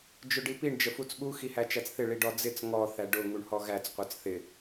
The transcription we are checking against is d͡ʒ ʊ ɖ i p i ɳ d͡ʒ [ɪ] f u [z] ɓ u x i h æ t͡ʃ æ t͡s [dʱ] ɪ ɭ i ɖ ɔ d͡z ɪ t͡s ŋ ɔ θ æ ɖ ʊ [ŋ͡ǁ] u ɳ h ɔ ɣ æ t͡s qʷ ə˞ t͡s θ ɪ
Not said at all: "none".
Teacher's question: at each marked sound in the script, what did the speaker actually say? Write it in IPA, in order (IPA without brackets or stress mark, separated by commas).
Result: ə, t͡s, θ, ŋ